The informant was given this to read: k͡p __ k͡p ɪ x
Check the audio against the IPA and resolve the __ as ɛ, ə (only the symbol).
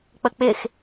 ə